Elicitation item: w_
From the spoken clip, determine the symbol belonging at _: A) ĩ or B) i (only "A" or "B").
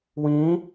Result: A